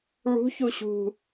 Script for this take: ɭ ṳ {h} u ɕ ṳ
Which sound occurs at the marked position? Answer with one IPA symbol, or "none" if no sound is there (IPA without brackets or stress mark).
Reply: ç